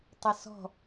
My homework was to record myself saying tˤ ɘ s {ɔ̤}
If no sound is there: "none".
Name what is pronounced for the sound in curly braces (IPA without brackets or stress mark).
ɔ̤